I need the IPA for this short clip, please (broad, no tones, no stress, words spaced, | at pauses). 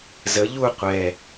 zə ʎu qʷɛ